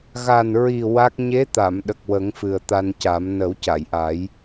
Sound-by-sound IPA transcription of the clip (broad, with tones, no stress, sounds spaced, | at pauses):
ɣ a˨˩ n ɹ i˨˩ w a˦˥ k̚ ɲ e˧˥ t̪ a˨˩˨ m ɗ ə˨˩ k̚ w ə˨˩˦ ŋ f ɨ˨˩ ə̯ t̪ a˧ n c a˨˩˦ m n ə˨˩˦ w c a˨˩˨ j ʔ a˨˩˦ j